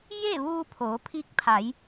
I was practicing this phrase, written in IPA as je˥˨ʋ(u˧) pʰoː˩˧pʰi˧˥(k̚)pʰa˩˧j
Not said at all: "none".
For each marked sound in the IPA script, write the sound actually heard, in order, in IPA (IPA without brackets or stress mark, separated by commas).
uː˧, k̚